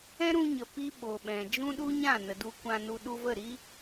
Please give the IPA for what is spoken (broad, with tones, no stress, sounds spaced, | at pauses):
ɛ̃˦ ɾ ũ˧ ɲ ə˨ p i˦ ɓ o˨ ɓ ɛ̃˨ d͡ʒ ũ˦ ɗ u˦ ɲ ã˦˨ n ə˨ d u˧ kʷ ã˧ n u˧ ɗ u˧ v ə˦˨ ɾ i˦